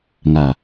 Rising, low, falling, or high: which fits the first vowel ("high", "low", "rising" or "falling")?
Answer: low